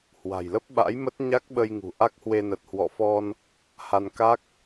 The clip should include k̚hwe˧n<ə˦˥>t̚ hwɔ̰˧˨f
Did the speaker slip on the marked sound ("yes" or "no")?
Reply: yes